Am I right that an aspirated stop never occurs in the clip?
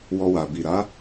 yes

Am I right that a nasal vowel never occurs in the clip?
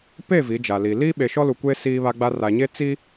yes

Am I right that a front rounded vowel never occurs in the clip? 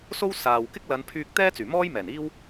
no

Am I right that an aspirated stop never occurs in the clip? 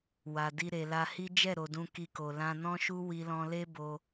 yes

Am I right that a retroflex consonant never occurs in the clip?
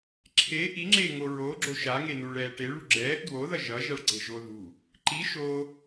no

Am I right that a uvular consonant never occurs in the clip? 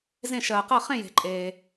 no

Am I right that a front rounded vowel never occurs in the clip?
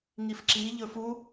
yes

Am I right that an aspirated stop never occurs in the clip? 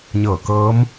yes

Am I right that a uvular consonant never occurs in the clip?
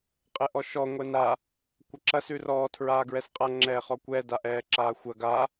no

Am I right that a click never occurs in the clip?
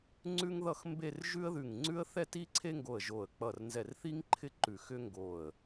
no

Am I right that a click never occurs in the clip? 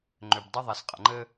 no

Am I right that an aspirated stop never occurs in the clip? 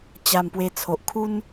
no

